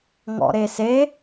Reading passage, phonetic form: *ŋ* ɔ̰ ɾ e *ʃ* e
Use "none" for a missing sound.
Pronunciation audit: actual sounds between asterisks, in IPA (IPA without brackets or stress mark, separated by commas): ŋ, s